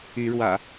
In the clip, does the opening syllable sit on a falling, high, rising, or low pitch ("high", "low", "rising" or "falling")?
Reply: rising